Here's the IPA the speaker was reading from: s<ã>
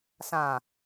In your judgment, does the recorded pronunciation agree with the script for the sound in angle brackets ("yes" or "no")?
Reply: yes